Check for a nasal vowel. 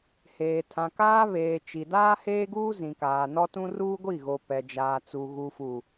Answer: present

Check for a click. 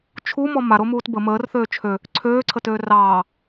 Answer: present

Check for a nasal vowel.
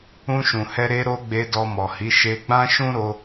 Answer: present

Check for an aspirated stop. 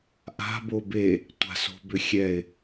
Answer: absent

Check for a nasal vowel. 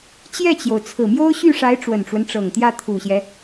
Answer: absent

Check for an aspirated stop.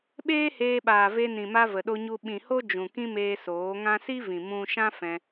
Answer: absent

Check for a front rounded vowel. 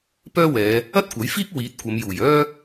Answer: present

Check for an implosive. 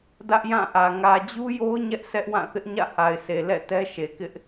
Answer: absent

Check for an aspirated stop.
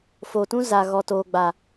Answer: absent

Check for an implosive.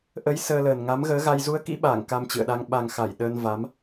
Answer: present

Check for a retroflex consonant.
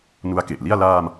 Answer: absent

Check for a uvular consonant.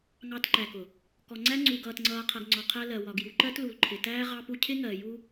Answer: present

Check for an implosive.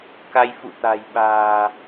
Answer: present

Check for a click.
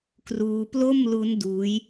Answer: absent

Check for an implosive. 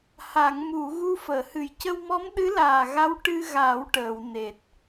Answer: present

